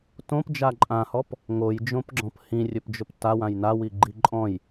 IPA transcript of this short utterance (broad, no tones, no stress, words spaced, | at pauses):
tõpd͡ʒa ǃʼãhɔp | ŋojd͡ʒõpɡ͡ǁɔ̃p hĩrʲɵpd͡ʒɵp tawãj nawiɡ͡ǃi ǃʼɔ̃j